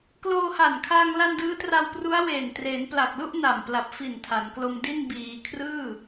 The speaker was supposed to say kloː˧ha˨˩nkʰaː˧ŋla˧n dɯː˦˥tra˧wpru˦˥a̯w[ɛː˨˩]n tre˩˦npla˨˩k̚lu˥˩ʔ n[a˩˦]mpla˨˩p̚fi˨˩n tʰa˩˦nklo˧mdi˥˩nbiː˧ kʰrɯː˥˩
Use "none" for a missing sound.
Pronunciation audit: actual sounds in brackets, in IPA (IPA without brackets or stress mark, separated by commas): eː˨˩, a˨˩